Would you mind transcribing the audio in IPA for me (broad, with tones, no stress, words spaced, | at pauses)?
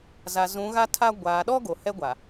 za˨zũ˨˦ɣa˦tʰa˦ ɡʷaː˨ɗɔ˦ ɡo˨hɛ˦ɡʷa˨